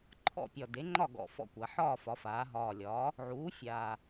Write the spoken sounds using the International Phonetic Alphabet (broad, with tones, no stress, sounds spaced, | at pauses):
ǃʰ ɔ̰˥˨ pʲ ɒ˨˩ d e˩˥ ŋ͡ǃ ɒ˥˨ ɡ ɔ̰˨˩ f ɔ̰˥˨ kʷ a˩˧ ħ ɒː˥˨ f ɒ˩˧ f aː˩˧ ɦ ɒː˨˩ lʲ ɒː˩˥ | ʕ uː˩˥ fʲ aː˨˩